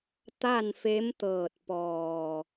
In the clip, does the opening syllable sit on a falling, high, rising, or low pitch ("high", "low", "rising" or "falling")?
falling